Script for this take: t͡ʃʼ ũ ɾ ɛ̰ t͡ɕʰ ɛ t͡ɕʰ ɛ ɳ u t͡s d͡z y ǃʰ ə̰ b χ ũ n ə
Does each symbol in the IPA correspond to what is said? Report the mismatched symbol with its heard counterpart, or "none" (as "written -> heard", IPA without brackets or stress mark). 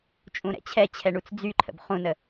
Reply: none